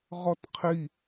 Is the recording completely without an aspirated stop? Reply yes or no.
no